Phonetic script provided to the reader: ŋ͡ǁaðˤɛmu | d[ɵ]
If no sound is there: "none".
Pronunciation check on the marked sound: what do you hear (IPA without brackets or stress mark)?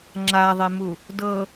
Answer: ɤ